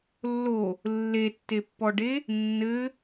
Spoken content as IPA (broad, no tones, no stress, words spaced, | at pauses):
lːo | lːetːepːɔɖe | nːɘ